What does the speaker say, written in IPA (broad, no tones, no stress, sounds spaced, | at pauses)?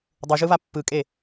dˤ u ʒ ɯ β a pː ɯ kʼ e